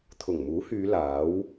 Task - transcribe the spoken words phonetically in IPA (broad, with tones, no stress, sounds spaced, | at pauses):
t̪ʰ ʊ˨˩ ŋ m uː˨˥ h yː˨˧ l aː˨˥ w